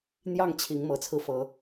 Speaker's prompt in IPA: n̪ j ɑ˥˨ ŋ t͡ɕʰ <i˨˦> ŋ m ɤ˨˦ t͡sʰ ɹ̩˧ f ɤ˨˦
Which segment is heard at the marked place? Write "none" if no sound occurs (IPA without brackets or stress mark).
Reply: i˨˦